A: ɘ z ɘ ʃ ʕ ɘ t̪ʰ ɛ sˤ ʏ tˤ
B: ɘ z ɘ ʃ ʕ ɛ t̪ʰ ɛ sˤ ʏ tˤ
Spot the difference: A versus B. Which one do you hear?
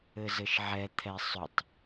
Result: B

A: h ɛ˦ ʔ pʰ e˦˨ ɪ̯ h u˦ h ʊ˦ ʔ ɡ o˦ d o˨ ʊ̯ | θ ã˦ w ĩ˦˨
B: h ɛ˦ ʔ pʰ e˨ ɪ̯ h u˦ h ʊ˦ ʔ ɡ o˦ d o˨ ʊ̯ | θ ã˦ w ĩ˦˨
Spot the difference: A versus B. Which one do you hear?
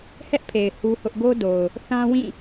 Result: B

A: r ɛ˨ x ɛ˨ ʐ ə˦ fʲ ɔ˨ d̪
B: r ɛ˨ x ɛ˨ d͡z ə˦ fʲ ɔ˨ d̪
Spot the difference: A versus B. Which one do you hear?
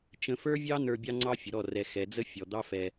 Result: B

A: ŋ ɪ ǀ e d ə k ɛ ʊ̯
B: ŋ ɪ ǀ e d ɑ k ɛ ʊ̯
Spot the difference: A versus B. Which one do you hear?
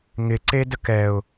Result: A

